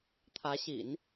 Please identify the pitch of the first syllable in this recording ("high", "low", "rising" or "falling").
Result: rising